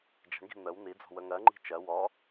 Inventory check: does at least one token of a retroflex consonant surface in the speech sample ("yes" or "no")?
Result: yes